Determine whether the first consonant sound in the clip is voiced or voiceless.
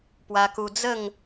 voiceless